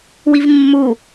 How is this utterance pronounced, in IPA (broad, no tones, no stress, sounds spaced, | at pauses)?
w i v mː u